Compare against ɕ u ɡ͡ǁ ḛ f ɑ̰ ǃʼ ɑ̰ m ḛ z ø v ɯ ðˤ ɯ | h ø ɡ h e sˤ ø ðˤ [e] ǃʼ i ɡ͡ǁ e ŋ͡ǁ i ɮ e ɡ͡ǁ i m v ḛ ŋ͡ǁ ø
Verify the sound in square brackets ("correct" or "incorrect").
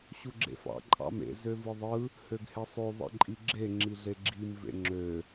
incorrect